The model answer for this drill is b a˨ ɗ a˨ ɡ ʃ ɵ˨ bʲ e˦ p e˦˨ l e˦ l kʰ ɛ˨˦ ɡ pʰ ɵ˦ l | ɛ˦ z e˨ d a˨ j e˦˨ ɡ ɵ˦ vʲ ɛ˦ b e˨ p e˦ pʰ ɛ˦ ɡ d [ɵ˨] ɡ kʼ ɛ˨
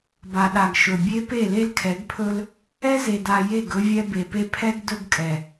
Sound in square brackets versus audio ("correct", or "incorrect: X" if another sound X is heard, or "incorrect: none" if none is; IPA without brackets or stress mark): incorrect: ɵ˦